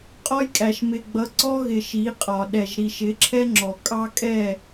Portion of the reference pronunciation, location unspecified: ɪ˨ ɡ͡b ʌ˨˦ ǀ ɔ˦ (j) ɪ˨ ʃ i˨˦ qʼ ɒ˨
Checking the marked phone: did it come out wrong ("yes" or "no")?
yes